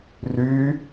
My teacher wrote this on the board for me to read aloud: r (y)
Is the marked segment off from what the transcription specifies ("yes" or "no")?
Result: no